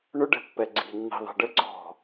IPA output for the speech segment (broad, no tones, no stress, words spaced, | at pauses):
ɳʊɖɛ̤pːɛ ɡ͡ǀi̤nːi̤ ðˤɛ̤ɖə ǀɔ̤